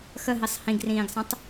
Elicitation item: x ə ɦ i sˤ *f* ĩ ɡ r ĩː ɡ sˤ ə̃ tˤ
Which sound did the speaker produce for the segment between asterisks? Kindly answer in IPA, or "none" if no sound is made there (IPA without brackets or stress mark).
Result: h